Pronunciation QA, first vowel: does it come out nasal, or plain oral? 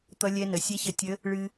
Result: oral